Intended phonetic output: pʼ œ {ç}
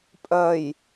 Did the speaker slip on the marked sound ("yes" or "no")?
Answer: yes